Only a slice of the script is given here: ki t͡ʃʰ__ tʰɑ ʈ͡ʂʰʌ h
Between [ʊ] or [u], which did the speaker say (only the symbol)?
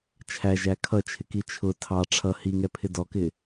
ʊ